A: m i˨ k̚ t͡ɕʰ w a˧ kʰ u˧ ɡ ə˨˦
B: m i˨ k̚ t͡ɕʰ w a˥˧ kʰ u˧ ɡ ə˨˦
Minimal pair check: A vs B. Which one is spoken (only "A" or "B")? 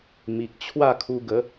B